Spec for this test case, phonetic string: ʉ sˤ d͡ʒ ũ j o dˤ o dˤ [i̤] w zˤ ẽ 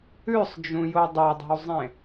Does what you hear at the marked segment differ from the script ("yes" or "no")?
no